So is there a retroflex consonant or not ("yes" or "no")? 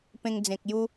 no